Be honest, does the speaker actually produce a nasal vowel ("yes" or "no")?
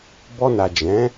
yes